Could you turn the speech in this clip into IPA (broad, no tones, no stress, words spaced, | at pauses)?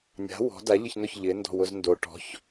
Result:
nʲa̤ wɔ̤ da ʎɪçnʊç ʎɪ ndɔ̤wʊzndo ʈɔ̤ç